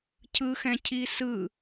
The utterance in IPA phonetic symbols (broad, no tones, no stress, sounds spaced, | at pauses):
cʰ ɯ x ɛ̃ cʰ i s ɯ